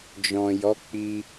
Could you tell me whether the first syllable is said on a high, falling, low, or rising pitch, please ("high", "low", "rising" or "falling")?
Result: low